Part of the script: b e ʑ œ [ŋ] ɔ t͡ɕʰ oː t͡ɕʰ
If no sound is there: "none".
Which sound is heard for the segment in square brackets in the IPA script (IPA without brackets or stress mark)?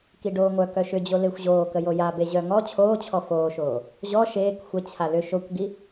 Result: ŋ